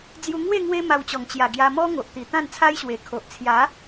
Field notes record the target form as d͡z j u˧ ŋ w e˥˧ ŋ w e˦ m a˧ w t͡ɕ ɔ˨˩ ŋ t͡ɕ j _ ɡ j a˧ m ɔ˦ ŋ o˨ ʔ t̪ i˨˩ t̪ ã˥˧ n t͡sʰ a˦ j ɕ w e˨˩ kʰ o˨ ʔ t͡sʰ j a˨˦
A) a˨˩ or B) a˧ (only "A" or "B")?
A